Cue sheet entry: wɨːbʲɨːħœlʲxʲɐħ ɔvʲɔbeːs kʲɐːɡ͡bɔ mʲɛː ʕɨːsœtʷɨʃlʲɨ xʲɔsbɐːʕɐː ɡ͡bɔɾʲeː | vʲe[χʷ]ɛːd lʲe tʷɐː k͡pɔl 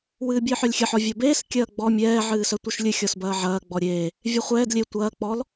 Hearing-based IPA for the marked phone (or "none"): χʷ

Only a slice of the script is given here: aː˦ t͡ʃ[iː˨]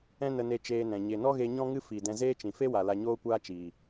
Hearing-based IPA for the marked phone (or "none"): iː˨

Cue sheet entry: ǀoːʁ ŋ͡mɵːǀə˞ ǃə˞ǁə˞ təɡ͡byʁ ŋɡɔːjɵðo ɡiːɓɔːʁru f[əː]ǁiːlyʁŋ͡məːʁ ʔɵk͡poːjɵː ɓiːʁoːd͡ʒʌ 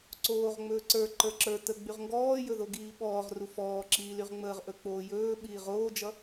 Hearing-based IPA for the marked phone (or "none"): ɔː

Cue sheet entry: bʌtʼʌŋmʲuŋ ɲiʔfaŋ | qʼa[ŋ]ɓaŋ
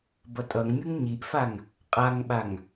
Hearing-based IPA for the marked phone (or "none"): ŋ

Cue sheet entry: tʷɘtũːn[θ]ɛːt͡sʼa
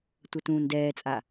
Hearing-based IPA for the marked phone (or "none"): d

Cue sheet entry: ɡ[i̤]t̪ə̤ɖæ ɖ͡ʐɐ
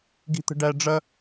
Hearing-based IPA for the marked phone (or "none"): i̤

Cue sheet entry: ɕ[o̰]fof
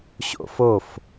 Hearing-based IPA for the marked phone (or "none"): o̰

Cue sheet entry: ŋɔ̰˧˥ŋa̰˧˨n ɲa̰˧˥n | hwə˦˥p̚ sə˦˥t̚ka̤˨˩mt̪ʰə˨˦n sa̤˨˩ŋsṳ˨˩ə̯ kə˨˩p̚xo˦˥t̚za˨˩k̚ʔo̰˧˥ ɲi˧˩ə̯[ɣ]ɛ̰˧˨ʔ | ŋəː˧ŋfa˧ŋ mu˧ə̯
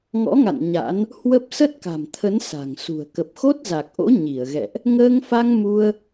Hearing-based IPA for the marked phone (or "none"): ɣ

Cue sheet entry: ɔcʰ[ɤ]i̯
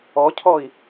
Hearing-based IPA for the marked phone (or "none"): ɔ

